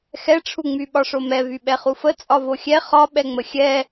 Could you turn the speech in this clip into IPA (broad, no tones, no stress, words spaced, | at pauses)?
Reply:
xɛʈ͡ʂʰuŋ͡my ɓɒʂomɛ vyɓɛχufə t͡sʼɒvoxʲɛ χɒ ɓɛŋ͡məxʲɛ